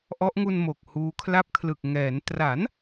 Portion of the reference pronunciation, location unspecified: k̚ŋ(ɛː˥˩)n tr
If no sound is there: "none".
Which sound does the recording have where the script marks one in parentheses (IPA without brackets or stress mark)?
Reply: ɛː˩˦